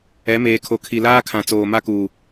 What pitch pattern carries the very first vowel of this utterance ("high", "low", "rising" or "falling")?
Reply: rising